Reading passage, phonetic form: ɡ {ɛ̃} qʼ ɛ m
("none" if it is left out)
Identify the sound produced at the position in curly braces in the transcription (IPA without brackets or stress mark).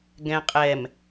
ɛ̃